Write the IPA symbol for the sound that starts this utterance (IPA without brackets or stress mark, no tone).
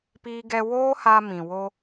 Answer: p